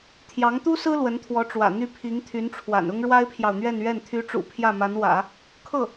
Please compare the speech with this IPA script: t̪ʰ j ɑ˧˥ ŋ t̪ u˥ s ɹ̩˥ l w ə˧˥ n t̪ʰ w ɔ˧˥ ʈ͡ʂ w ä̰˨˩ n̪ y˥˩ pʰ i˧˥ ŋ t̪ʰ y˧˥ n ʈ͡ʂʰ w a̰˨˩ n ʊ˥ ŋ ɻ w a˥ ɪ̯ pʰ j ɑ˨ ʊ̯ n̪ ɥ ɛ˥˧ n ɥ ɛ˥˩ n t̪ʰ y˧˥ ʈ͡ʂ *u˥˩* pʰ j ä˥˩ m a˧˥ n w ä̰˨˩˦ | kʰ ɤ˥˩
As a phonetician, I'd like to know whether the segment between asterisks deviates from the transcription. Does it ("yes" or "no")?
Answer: yes